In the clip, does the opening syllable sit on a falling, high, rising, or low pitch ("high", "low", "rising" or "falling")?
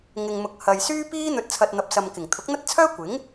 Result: low